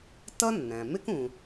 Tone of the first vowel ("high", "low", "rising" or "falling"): high